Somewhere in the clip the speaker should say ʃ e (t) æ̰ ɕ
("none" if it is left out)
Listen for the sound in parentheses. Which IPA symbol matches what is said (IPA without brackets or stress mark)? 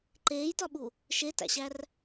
t